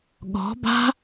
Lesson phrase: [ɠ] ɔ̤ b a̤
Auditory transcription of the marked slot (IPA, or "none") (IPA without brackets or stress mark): ɠ